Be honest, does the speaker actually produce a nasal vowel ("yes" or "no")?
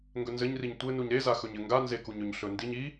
no